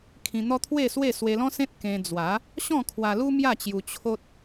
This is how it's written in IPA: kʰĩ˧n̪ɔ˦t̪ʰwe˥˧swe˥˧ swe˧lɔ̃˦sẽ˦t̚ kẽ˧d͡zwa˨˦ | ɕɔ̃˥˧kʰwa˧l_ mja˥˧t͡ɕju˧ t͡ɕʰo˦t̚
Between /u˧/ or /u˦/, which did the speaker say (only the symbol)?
u˦